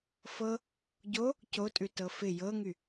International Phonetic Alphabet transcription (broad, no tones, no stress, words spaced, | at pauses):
fɤ | ɟo | cotʼʉ tɤfɪ jɤŋy